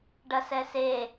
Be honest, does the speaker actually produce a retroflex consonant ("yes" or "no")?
yes